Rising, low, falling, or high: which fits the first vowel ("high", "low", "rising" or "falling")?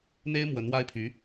high